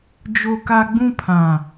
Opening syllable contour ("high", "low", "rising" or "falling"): high